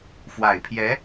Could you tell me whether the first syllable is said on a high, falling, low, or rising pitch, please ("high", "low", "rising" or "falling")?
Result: low